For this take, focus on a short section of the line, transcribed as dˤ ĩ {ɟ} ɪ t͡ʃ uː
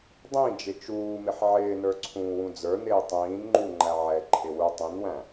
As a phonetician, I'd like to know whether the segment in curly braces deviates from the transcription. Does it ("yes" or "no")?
yes